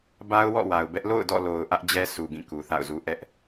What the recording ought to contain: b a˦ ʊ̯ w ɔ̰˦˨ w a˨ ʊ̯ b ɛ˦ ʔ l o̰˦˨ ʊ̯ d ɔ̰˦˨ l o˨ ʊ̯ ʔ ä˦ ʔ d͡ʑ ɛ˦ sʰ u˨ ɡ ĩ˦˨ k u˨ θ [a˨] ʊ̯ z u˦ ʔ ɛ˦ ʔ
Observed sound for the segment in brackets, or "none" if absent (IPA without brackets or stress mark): a̰˦˨